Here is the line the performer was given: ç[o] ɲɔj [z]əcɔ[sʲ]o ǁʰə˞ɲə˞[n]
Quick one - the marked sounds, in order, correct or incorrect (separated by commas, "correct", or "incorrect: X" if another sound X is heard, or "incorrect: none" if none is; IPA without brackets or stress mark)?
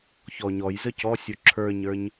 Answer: incorrect: ɔ, correct, correct, incorrect: ɲ